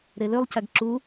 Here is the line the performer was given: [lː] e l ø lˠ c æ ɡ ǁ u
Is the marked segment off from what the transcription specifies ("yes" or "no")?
yes